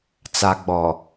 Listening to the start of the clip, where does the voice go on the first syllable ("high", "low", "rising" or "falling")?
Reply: low